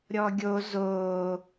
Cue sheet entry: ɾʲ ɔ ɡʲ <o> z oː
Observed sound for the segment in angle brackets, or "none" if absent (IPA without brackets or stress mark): o